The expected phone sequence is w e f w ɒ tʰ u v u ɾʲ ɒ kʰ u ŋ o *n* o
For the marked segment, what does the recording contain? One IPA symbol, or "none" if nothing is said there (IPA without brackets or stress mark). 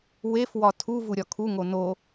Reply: n